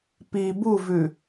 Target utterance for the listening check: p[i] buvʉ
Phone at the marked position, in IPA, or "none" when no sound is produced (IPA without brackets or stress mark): i